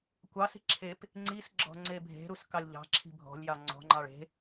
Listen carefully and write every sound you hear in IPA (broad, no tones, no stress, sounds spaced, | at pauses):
kʷ ɑ s i̤ ǁʰ e p | ŋ͡ǀ i s ɡ͡ǁ ɔ̤ ŋ͡ǀ e bʱ e̤ ɾ u s k ɑ lʲ ʎ ɑ̤ ǁʰ i̤ bʱ ɔ̤ lʲ j ɑ ŋ͡ǀ ɔ̤ ŋ͡ǃ ɑ ɭ e̤